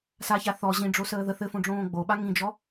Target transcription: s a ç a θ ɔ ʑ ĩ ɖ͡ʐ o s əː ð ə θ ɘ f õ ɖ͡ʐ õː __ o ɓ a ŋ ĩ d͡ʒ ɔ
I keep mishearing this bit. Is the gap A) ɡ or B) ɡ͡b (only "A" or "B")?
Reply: B